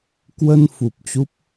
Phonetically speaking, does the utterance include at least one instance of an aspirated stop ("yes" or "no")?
no